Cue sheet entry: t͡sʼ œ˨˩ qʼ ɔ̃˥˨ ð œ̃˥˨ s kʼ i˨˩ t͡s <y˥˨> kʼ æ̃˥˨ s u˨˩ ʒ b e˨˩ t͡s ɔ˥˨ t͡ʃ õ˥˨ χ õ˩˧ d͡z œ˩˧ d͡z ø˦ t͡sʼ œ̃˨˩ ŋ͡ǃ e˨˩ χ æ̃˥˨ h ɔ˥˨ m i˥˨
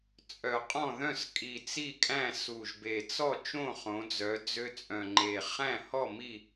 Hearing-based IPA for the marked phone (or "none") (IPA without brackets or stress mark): i˥˨